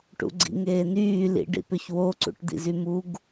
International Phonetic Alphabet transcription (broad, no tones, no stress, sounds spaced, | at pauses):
ʈ ṵ ɡ͡ǀ ḭ ŋ eː n yː l ḭ ɖ ḭ p ʏ ç w o ǀ ṵ ʈ d̪ ḭ z y m u ɡ